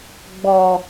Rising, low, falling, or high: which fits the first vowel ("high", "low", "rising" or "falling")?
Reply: low